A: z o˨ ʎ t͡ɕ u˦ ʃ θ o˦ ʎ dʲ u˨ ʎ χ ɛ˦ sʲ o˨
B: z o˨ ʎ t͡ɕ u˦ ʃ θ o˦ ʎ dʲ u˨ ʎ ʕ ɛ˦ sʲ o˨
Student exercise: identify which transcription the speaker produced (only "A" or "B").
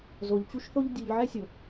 B